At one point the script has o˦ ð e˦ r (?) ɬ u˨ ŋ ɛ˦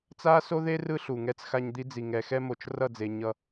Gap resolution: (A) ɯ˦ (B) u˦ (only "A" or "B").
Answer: A